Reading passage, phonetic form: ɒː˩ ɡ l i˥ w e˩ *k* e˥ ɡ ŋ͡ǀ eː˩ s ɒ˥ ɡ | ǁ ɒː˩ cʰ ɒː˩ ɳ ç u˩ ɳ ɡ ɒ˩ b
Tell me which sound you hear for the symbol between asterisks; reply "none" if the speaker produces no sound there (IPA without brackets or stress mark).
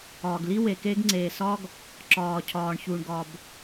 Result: k